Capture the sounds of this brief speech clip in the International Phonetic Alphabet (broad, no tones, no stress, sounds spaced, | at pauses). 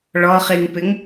ɭ ɔ χ i ŋ p ɪ ŋ